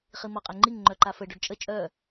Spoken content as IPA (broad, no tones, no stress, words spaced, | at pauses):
χimɔqʼɛŋ͡ǃiŋ ŋ͡ǃœǃafə ɖɔɖt͡ʃʼə t͡ʃʼœ